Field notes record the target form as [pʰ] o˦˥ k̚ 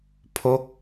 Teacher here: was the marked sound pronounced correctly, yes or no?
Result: yes